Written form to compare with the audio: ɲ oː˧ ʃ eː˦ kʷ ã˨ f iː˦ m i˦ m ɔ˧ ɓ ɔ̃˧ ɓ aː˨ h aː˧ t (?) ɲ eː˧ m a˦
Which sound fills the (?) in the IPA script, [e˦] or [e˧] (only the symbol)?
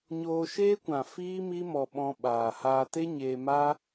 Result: e˦